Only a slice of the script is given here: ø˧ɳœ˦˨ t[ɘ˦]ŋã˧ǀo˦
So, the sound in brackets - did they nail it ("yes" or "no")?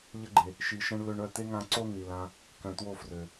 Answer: no